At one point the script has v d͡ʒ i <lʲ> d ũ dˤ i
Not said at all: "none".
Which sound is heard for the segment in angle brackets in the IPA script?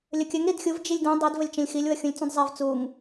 lʲ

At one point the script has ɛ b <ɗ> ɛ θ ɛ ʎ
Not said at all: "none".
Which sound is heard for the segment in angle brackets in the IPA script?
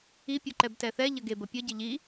t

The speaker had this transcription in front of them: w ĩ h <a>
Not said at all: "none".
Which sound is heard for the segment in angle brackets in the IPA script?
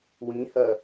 ɐ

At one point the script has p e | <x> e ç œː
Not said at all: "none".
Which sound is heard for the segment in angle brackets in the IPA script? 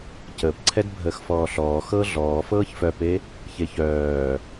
ç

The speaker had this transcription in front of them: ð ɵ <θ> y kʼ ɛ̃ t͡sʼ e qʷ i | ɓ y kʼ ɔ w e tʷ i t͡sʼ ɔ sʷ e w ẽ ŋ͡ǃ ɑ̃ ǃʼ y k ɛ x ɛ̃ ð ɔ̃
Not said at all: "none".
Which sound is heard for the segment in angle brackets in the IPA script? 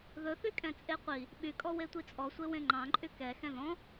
θ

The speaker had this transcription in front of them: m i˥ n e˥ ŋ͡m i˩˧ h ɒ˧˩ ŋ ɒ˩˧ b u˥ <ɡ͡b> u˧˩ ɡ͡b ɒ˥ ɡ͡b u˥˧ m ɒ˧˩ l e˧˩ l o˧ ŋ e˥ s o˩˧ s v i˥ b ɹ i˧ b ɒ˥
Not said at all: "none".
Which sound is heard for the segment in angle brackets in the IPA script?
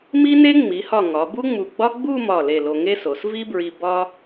ŋ͡m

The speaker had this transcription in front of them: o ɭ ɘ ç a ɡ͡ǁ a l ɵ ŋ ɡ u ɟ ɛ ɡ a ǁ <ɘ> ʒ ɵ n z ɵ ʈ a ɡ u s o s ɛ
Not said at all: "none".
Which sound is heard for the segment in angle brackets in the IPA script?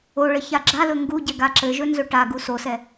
ɘ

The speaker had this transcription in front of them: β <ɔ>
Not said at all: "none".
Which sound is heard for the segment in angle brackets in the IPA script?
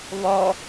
ɔ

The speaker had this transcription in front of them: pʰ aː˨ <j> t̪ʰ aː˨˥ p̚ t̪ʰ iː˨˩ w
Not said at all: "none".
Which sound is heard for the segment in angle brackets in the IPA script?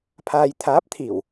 j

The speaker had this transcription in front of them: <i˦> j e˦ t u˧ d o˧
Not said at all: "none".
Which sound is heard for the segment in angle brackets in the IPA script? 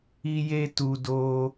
i˦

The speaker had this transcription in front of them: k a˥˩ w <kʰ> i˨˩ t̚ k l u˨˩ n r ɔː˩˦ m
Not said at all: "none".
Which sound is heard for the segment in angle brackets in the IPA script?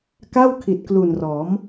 kʰ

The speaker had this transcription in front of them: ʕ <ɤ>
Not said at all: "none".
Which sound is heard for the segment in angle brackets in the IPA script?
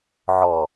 ɔ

